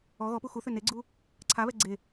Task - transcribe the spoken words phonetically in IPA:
ɔ ɣɔpu xuθø neɡ͡ǀu | ǀʰaβɛ ɡ͡ǀe

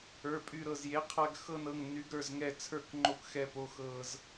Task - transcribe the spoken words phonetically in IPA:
ə˞˩˧˩pʼy˧˩ɾɤ˧˩zje˩˥ qʰa˧ɡ xɤ˧nɤ˩˧˩ŋ ny˩˥ɡ ɾə˞˩˧˩zŋɛ˧˩ t͡sʰə˞˧˩k ŋ͡ǃo˧˩kxɛ˧˩po˩˧˩ xɤ˧˩z

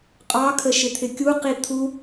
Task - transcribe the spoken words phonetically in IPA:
qʼɑkʰə ʃɪt̪ʰɪkʲuqi t̪ʰu

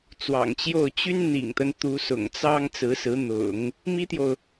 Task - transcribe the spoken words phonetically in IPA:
t͡swɑ̰˨˩ŋt͡ɕjo˥˩ʊ̯ t͡ɕy˥nn̪ḭ˨˩ŋt̪ə˦n t̪u˧˥sʊ̰˨˩ŋt͡sɑ˥ŋ t͡sɹ̩˧˥sɹ̩˧˥n̪ʊ̰˨˩˦ŋ | mi˥t̪jo˨ʊ̯

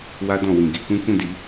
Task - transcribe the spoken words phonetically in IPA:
wa˧dɔ̃˨ wĩ˨ ɡe˨˦kũ˦ kũ˦˨di˨˦

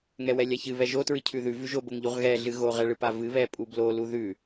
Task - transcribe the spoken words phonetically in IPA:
ŋɛwɛlʲaçɨ βɛʒo tɹɨcʰʉðʉ vʉʒo boŋʎuʁɣɛ ɮɨɣo ʁɛɭɨpavɨ βɛpʼublo luðʉ

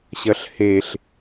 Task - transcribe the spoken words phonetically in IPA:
ɕɐɬheɬ

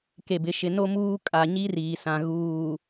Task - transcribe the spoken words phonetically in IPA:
ke˨bɪ˨ʃɪ˨ no˦muː˦ kʼa˨ ɲi˦riː˨sã˨ ɣuː˨

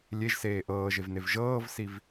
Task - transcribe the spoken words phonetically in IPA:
lʲeʒseː ʔɤːʒevnev ʒɤːvsiv

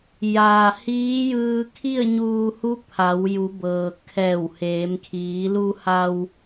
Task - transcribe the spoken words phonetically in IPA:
jaː˩ hiː˧˥jɯː˧ kʰi˥˨ə̯ɲuː˧ hu˧˥ pʰa˩˧w ju˩˧bɤː˩kʰɛː˧˩wheː˩˧m kʰiː˩˧lu˧ha˧w

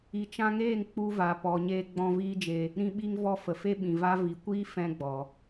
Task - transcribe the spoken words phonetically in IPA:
i˨t͡ʃã˧ŋeː˦˨ŋ k͡pu˧ va˨ pɔ˨ɲeː˧ɡ͡bɔ̃˧ viː˦d͡ʒe˧ | ɾĩ˧ɓi˧ŋvɔ˧ fə˨fe˦ɓĩ˨va˦ vi˨kʷiː˦fɛ̃˧ ɡ͡bɔ˨

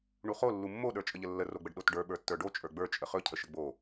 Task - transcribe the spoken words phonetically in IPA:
ɳuχo lːumːo ɗə˞t͡ʃʼəʎəlːə roɡ͡bəɖɗotɖə˞ ɓə˞tːə˞ɖo t͡ʃʼə˞ɡ͡bə˞ t͡ʃʼəχɵ cʰəʃəɡ͡bo

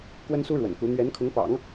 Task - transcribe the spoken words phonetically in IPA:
kwə˥nsu˥ɻwə̰˨˩nku˧˥ n̪ɥɛ˧˥nkʰʊ˧˥ŋpɑ̰˨˩˦ŋ

